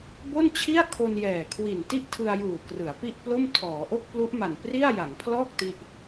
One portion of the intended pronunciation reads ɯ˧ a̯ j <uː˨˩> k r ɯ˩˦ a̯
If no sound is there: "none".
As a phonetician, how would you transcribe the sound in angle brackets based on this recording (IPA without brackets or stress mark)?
uː˨˩